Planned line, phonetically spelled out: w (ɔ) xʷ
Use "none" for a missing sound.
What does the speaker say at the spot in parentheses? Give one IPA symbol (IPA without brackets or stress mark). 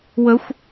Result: ə